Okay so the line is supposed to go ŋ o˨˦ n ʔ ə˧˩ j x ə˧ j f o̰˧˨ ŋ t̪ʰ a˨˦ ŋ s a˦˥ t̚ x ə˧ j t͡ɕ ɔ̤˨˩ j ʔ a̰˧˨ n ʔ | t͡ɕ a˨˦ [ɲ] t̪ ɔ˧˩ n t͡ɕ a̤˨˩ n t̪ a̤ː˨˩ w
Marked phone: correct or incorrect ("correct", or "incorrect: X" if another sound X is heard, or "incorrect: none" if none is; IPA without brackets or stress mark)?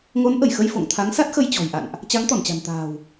incorrect: ŋ